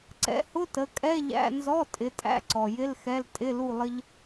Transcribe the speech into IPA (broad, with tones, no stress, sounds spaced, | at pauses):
ǀ ɛ̰˨˦ h ʊ˧˥˧ t ə˩˧˩ kʼ ɛ˧˥˧ ʎ æ̰˧˥˧ n z ɔ˧˥˧ tʼ ɪ˨˦ tʼ æ̰˧˥˧ ǀ ɔ˩ j ɪ˧˥˧ l x ɛ˧˥˧ l tʼ ɪ˧˥˧ l u˥˧ lˠ ə˥ ʎ